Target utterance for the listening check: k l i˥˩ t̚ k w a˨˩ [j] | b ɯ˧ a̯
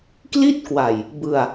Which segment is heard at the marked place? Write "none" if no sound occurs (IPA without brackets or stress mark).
j